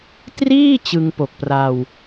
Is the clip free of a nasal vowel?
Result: yes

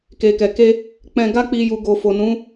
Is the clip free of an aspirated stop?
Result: yes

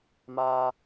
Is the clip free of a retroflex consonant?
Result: yes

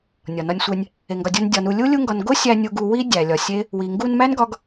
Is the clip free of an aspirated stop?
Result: yes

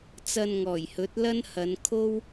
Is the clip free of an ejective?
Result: yes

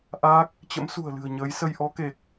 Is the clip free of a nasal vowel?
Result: yes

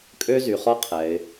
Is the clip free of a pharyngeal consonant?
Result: yes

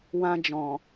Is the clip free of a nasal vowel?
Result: no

